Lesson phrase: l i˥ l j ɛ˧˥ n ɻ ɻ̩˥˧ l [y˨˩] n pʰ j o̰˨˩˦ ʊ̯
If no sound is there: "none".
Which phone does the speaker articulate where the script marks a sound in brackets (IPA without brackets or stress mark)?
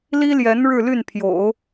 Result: y˥˩